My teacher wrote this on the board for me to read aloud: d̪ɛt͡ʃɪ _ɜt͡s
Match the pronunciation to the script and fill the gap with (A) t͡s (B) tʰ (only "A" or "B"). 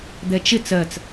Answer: A